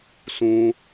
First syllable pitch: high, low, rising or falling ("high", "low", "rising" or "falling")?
low